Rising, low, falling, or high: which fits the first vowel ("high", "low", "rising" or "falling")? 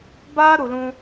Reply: high